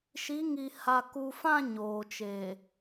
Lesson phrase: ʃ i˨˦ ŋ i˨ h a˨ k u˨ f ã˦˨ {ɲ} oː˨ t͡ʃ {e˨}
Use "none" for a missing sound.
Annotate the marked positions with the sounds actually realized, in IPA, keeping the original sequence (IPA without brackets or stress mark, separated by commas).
ɲ, eː˨